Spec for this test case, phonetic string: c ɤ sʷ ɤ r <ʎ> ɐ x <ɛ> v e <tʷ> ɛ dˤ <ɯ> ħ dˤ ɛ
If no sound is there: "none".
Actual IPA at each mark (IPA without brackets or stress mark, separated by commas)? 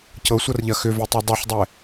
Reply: ʎ, ʏ, tˤ, ɤ